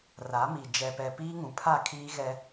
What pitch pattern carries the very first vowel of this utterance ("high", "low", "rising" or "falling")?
rising